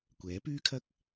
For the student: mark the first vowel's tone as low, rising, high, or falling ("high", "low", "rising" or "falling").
rising